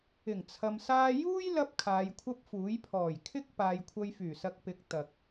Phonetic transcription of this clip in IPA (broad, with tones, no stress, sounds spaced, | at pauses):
ɪ˨˩ ŋ t͡sʰ ɐ˨ m s aː˧ j uː˥ j l ɐ˧ p̚ kʰ aː˨˧ j kʷʰ ɐ˥ p̚ f uː˨˥ j pʰ ɔː˨˩ j kʰ ɪ˥ k̚ p aː˨ j kʷʰ ɐ˧ j f yː˨˩ s ɐ˧ k̚ p ɪ˨˥ k̚ t̪ ɐ˨ k̚